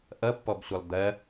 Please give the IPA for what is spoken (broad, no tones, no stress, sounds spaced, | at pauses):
ʔ ʌ pː ɔ b sʷ ʌ lˠ d̪ ɐ